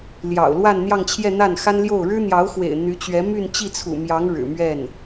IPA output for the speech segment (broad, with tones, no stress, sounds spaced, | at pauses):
l j ɑ̰˨˩ ʊ̯ l w a˥˧ n n̪ j ɑ˥˧ ŋ t͡ɕʰ j ɛ˥˧ n̪ a˥˩ n x a˥ n l j o˥˩ ʊ̯ ɻ ɻ̩˥ n̪ j ɑ˧˥ ʊ̯ x w ḛ˨˩ ɪ̯ n̪ y˧˥ t͡ɕ ɥ ɛ˧˥ m y˥˧ n t͡ɕ i˥˩ t͡sʰ ṵ˨˩ m j ɑ˧˥ ŋ ɻ ɻ̩˨˩ m ɥ ɛ˥˩ n